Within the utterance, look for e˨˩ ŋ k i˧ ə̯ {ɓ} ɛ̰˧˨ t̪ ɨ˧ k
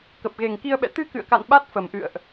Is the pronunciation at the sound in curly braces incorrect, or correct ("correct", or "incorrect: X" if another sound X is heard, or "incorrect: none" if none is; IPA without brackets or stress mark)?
correct